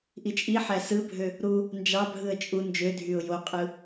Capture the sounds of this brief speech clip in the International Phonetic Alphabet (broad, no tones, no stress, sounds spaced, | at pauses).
ʔ i t͡ʃʼ i ħ æ s ɯ bʱ ø | ɾ u | n d͡ʒ ɑ bʱ ɯ ə̯ t͡ʃʼ u n d͡ʒ ø dʱ y ʊ̯ j o qʼ ɯ